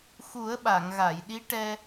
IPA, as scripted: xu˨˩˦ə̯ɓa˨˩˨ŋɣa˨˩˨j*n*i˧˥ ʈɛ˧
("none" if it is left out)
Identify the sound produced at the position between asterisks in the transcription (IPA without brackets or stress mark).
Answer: ɗ